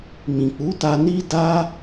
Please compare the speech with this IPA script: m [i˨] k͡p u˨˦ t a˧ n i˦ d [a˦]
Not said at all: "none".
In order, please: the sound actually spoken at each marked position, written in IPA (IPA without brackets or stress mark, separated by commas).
ĩ˨, a˦